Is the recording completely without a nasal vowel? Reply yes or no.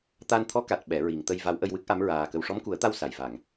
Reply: yes